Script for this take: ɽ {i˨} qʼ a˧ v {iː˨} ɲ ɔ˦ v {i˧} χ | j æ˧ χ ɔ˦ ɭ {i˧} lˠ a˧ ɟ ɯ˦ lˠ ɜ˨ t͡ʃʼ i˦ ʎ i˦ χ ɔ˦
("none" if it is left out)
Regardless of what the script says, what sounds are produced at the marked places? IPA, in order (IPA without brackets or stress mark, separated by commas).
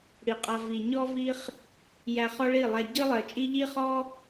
i˨, i˨, i˦, i˦˨